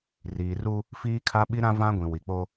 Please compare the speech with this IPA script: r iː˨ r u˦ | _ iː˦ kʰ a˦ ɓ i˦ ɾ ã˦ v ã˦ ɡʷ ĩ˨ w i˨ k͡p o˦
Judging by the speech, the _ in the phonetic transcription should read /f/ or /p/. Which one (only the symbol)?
f